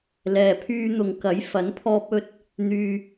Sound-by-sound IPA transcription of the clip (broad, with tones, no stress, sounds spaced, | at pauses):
l ɛː˨ pʰ yː˧ n̪ ʊ˨˧ ŋ k ɐ˨˥ j f ɐ˨˥ n pʰ ɔː˧ p̚ ɵ˧ t̚ | n̪ yː˧